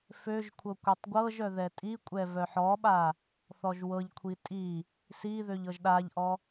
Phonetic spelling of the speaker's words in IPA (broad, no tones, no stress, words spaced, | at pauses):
føʒkʷʰɤ kʷɛtˤɡʷɤʒœ ðɛtʼikʷʼɛ vœħɔɓa | θɔʒwɤʎkʷʰi tʼi | siðøʎ ɤʒɗaʎʔɔ